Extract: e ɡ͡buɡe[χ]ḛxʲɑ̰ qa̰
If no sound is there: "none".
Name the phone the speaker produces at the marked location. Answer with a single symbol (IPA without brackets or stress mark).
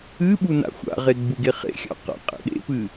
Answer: χ